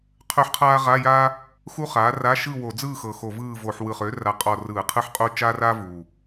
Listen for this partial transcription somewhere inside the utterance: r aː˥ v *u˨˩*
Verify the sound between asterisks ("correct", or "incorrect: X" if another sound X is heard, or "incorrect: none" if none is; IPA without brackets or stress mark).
correct